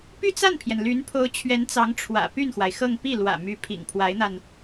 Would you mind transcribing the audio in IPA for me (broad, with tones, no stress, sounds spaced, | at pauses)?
p y˥˧ t͡s a˥˩ n pʰ j ɛ˩ n l y˧˥ n pʰ o˧˥ ʊ̯ t͡ɕʰ ɥ ɛ˧˥ n t͡s ɑ˧˥ ŋ ʈ͡ʂʰ w ä̰˨˩ p y˥˩ n x w a˩ ɪ̯ x ɤ˥˧ ŋ p i˥˩ l w ä̰˨˩ m y˧˥ pʰ ḭ˨˩ ŋ pʰ w a˧˥ ɪ̯ n̪ a˧ n